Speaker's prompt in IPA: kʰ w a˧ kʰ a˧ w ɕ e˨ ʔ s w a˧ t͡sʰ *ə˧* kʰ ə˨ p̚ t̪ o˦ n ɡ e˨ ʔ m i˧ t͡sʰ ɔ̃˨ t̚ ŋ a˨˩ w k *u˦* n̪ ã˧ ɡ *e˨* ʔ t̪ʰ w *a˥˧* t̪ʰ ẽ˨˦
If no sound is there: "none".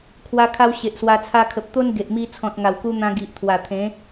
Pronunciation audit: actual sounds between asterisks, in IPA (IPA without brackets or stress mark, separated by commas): a˧, u˧, i˨, a˨˩